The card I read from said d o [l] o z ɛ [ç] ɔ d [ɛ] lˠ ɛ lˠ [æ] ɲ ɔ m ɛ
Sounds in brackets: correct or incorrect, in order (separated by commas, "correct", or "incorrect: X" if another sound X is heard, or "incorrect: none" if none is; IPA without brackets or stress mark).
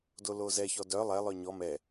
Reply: correct, correct, incorrect: œ, incorrect: œ